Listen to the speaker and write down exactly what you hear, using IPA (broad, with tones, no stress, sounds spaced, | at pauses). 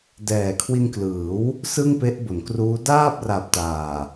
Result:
d ɛː˨˩ kʰ w i˧ n k l ɯː˩˦ w | s ɯ˥˩ ŋ p e˦˥ ʔ b o˩˦ n k r uː˦˥ d aː˥˩ p̚ r a˨˩ p̚ t aː˨˩